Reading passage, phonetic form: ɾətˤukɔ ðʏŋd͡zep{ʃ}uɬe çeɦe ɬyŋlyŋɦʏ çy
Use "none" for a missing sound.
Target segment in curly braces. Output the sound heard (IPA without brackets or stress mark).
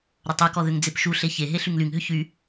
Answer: ʃ